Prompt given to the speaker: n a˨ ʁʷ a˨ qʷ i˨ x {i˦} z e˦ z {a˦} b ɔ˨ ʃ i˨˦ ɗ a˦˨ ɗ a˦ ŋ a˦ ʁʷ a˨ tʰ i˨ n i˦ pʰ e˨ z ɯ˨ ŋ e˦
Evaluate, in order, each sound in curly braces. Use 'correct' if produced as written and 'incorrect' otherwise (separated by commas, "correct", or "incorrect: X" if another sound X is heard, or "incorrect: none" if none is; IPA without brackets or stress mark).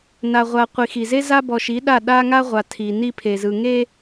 incorrect: i˨, correct